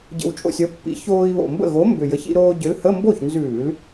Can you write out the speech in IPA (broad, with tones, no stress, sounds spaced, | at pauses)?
ɟ ə̰˨˩ w t͡ʃʼ o̰˨˩ sʲ ʌ˨˥ pː ḭ˨˥ ç oː˧ i̯ β o̰˨˩ m b ə̰˥˩ ɣ o˨˥ m b ʏ˨˩ j ə˨˥ ç ḭ˧ ɾ oː˧ ɟ ʏ˨˥ l h ə˧˥˧ m b o˥˩ ç n z ʉː˧˩˧ l